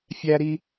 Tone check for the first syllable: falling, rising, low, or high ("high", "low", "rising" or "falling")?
high